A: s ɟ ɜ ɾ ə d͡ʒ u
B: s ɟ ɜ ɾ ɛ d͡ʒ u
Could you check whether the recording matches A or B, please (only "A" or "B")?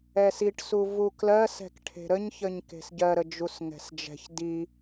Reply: A